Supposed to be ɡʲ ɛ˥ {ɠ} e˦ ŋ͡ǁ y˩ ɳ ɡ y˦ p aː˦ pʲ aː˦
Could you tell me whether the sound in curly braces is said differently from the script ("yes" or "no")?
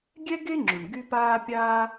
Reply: yes